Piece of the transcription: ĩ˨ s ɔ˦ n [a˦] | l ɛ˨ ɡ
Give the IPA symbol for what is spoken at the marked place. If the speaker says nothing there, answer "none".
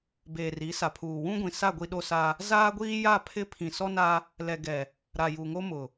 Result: a˦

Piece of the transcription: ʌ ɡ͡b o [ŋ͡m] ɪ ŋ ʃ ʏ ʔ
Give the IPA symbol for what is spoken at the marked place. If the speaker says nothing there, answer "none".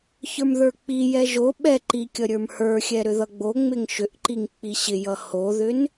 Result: ŋ͡m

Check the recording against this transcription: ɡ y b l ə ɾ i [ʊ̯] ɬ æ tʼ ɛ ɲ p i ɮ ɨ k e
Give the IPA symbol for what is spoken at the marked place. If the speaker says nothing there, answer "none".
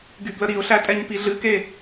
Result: ʊ̯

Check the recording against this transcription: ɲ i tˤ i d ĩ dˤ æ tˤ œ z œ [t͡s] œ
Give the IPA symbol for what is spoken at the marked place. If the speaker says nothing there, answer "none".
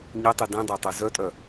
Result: tʼ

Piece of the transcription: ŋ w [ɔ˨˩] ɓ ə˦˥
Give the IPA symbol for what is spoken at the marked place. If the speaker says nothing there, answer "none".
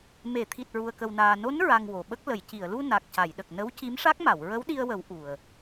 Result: o˨˩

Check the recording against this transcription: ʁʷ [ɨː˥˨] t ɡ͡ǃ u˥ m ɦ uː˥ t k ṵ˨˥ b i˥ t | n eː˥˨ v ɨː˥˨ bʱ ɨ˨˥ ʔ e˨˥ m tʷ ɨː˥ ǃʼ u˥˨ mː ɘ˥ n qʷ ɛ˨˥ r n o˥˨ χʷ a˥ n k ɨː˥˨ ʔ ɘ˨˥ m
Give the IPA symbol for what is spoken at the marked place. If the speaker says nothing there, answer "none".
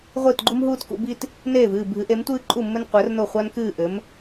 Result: ɨː˥˨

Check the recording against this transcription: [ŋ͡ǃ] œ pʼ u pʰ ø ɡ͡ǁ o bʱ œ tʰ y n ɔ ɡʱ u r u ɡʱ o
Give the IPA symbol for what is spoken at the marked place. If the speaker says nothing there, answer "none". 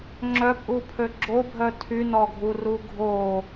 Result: ŋ͡ǁ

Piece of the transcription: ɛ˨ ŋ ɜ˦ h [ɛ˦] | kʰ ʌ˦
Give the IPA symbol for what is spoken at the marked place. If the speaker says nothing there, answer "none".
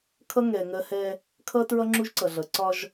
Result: ɛ˦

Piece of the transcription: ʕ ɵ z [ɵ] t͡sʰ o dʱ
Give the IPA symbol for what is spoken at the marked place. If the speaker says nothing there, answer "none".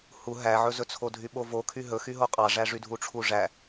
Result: ɵ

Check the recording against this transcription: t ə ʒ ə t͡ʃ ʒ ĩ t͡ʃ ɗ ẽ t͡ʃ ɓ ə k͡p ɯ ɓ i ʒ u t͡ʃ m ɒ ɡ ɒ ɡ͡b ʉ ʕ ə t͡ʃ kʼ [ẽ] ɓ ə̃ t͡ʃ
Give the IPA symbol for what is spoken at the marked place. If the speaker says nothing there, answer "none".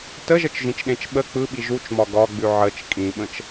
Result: ĩ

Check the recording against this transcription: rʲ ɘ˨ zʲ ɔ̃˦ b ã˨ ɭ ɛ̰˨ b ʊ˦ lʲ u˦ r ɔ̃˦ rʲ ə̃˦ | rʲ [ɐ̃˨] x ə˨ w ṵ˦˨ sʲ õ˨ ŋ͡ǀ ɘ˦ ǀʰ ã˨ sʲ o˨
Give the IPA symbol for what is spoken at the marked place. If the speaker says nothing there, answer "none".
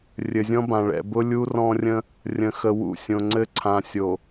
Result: ə̃˨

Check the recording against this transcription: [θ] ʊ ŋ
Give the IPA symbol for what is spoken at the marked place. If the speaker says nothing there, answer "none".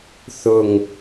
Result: θ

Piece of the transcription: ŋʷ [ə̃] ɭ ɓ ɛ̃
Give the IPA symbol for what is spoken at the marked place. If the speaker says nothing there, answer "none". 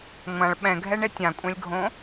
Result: ã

